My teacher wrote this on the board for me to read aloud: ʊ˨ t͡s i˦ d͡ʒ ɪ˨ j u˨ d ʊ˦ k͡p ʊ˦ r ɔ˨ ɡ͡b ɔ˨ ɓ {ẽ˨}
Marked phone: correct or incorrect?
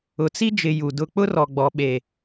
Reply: incorrect: e˨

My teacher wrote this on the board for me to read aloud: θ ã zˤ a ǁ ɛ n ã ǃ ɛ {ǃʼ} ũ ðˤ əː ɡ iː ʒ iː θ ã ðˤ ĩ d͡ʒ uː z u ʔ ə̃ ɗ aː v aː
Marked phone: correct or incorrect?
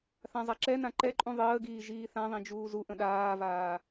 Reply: correct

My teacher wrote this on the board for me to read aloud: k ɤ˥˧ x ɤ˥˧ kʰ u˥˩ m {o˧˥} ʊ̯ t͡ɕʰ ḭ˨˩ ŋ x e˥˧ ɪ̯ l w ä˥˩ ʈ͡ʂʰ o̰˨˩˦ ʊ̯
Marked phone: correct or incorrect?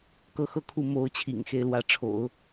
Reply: correct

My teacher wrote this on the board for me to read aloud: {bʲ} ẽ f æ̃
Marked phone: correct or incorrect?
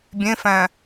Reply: correct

